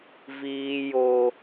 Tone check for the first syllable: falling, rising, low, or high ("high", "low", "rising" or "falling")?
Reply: high